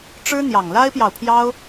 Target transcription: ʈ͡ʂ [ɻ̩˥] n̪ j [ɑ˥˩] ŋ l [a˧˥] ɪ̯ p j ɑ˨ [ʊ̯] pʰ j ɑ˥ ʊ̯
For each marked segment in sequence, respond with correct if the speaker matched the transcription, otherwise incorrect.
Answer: correct, incorrect: ɑ˨˩, incorrect: a˥, correct

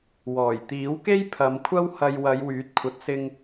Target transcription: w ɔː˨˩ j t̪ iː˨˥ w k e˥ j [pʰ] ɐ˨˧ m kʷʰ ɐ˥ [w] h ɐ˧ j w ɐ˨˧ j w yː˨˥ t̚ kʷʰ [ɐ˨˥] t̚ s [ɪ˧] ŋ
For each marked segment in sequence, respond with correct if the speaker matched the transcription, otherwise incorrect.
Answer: correct, correct, correct, correct

